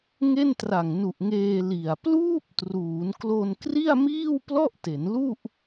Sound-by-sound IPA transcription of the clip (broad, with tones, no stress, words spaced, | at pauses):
ŋe˥˩ntra˨˩ŋnu˨˩ʔŋeː˧ li˨˩a̯ pluː˥˩p̚ truː˩˦nklo˧n kri˥˩a̯miː˥˩w plɔ˥˩ʔte˩˦nlu˥˩ʔ